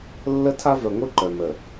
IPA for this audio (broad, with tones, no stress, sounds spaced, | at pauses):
lː ə˦ tʰ a˦ v œ˨ ŋʷ i˦ ǃ œ˨ m ə˨